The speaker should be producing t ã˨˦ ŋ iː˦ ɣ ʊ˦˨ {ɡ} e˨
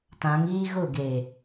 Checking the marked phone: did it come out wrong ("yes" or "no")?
no